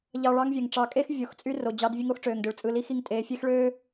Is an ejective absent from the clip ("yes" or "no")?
no